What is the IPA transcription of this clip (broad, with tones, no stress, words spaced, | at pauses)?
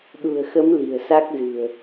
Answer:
ɗṳ˨˩ə̯xə˨˦m li̤˨˩ə̯sa˦˥k̚zɨ̤˨˩ə̯